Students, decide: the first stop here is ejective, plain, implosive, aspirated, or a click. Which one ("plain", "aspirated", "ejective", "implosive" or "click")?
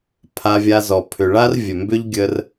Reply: aspirated